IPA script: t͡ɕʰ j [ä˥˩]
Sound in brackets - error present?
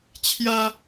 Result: yes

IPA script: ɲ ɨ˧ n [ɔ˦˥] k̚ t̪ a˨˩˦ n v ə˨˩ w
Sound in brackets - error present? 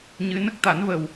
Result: yes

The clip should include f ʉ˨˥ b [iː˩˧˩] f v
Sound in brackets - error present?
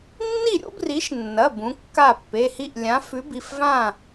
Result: yes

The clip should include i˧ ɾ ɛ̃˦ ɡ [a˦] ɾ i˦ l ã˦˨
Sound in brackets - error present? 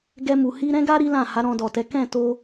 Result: no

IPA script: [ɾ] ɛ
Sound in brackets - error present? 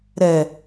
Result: no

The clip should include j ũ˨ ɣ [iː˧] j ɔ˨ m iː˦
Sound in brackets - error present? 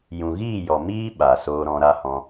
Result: yes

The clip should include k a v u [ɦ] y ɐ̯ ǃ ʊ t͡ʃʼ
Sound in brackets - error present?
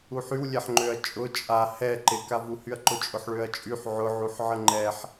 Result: yes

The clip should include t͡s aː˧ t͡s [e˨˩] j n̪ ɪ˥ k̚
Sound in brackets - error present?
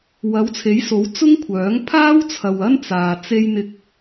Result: yes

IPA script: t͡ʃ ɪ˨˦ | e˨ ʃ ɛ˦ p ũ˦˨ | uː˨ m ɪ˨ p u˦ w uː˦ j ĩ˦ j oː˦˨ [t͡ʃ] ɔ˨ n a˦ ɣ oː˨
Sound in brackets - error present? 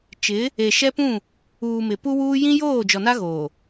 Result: yes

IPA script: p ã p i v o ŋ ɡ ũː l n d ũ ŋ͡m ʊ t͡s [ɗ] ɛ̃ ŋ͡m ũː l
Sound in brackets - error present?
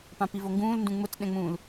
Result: no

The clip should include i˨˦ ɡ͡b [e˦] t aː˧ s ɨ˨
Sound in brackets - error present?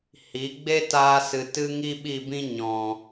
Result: no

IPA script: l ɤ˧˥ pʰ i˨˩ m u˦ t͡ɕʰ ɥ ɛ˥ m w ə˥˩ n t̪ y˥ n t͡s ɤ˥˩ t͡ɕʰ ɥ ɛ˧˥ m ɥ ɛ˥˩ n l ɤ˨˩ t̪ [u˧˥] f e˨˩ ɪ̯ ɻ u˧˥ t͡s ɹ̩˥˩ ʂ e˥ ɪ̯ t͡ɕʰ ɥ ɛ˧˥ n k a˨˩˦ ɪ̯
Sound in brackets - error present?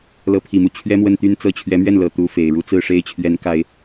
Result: no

